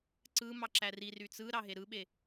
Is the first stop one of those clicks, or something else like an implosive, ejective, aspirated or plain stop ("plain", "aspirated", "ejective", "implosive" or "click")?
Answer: click